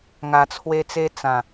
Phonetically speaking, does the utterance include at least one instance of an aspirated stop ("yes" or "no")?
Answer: yes